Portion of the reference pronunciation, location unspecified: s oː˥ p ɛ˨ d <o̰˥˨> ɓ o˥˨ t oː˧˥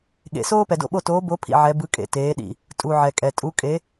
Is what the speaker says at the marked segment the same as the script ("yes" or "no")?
yes